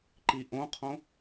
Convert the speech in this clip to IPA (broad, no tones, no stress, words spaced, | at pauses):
ǃiʔõqʰõ